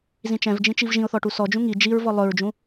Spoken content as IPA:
z ĩ t͡ʃ ɛ̃ v d͡ʒ ĩ t͡ʃ i v ʒ ĩ ʊ̯ θ ɔ ʈ u s ɔ d͡ʒ ũ ŋ i d͡ʒ i ɹ v ɔ lˠ ɵ ɹ d͡ʒ ũ

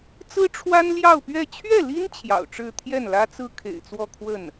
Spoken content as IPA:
t͡s ɹ̩˥ ʈ͡ʂʰ w a˥ n l j ɑ˥˧ ʊ̯ p ɥ ɛ˥˧ t͡ɕʰ ɥ ɛ˥˩ l i˥ n t͡ɕʰ j ɑ̰˨˩ ʊ̯ ʈ͡ʂ ɻ̩˥˧ t̪ʰ j ɛ˥˩ n l ä˥ t͡s ɹ̩˥ kʰ ḛ˨˩ ɪ̯ t͡s w ɔ˥˧ kʰ w ə˥˩ n

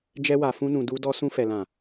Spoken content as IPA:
d͡ʒ ɛ˧ w a˨ f ũ˧ n ũ˨ d u˧ d ɔ˧ s ũ˧ f ɛ˨ l ã˨

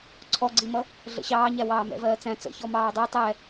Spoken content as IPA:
ǀʰ ɔ ɡ͡ǀ i m ʌ | ɮ ə̰ ɕ ɑː ɲ æ w ɑː m ɛ̰ v ɜː t͡s æ̃ t͡s ə̰ ç ɔ m ɑː dˤ i tˤ ɛ

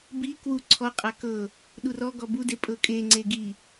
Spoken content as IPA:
b i k w u ǀʰ ɔ qʼ a k ɤ | ɗ u r ɔ ɡ ɔ b u d e pʼ ɤ kʼ e ŋ͡ǀ e ɡ i

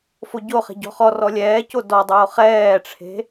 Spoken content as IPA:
f o ɟ o χ e̤ ɟ ɔ̤ χ ɔ r ɔ lʲ ɛː c o d ɔ dˤ oː χ ɛː ʈ͡ʂʰ e̤

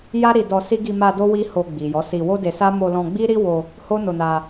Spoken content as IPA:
j a˦ ɾ i˧ d ɔ˧ s i˦ ɡ i˧ m a˧ d o˦ w i˦ h o˧ ɡ͡b i˨ j ɔ˨˦ s i˧ w o˦ d e˧ s a˦ m o˧ l ɔ̃˧ ɡ͡b i˦ ɾ i˦ w o˧ | h o˦ n o˧ n a˧

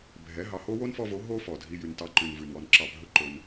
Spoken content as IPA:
bʱ ɛ˨˦ ɦ ɑ˨ h o˦ w o˦ n f ɔ˧ v o˨˦ ɦ o˦ f ɔ˨ dʱ i˦ j ʉ˧ n t ɑ˦ ǃ ʉ˧ n v ʉ˨ n w ɔ˧ n ǁ ɑ˧ bʱ ɵ˦ ǃ ɵ˧ n

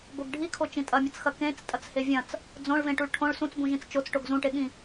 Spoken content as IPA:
b o ɡ ɖʱ i kʰ o t͡ʃ ĩ tʼ ɐ mʲ ɐ t͡s x ɐ k ẽ t͡s tʼ ɐ t͡s h e vʲ ɐ̃ t͡s | d͡z õ ɭ v ẽ ʈ u ɭ ʈʰ õ ɭ s ũ t͡s b ũ ʒ ĩ t͡s t͡ʃ o t͡s ʈ o ɡ z ũ ʈ e ɠ ĩ

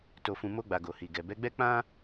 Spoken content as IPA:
t o˨ f ũ˨ m o˧ ɡ͡b a˨ ɡ o˨ h i˨ ɡ ɛ˨ b ɛ˨˦ ɡ͡b ɛ˦ k͡p ã˦

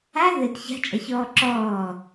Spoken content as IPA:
a ð ɘ d ç a̤ t͡ʃʼ a ç ɔː ǁ ɔː

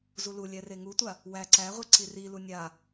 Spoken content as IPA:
z u l u lʲ ɛ r e ŋ u tʷ a | w æ ǀ æ ʁʷ i ǀ i r i l u nʲ a

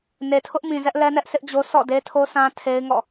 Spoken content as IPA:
n e˨ tʰ ʊ˦ ʔ m ĩ˨ z ɛ˦ ʔ l ɛ˦ n ɛ˦ ʔ s ɪ˦ ʔ d͡ʑ o˦ sʰ ɔ̰˦˨ d e˦ tʰ o˦ sʰ ã˦ tʰ e˦ ɪ̯ ŋ ɔ̰˦˨

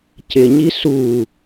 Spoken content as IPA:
c ɪ ɲ i s u

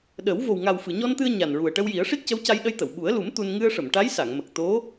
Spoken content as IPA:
ɗ ə˨˩˦ w v o˨˩ w ŋ a˨˩ w f ɨ˨˩˨ ɲ ɔ˧ n t̪ ɨ˧ ə̯ ɲ a˨˩ n ɹ u˨˩ ə̯ ʈ ə˧ w j i˨˩˦ ə̯ ʂ i˦˥ t̚ c ə˧˥ w c a˧ j ɗ ə˧ j t̪ ə˨˩˨ w ɓ u˨˩˦ ə̯ l u˨˩˦ m t̪ u˧ n ŋ ɨ˧ ə̯ ʂ ə˨˩˨ m ʈ a˧˥ j s a˨˩˨ ŋ m ə˨˩ k̚ t̪ o˧˥

